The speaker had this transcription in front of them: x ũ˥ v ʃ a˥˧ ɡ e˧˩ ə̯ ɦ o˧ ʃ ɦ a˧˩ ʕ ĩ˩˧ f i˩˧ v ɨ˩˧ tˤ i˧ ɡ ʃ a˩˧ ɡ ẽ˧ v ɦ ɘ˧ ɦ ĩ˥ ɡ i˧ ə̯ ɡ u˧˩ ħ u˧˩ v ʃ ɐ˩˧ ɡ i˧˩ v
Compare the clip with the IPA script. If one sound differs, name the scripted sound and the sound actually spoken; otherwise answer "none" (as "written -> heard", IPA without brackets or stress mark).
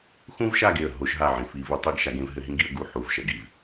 none